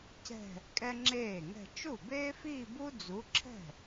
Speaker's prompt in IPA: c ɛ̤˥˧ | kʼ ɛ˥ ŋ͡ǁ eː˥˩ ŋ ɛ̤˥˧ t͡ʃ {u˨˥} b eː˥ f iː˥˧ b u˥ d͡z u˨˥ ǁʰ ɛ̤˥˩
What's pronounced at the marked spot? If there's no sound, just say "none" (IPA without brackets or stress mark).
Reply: u˥˩